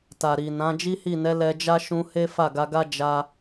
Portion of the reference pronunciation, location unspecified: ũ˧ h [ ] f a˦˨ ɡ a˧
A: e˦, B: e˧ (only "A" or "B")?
A